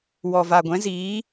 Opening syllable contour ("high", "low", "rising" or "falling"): low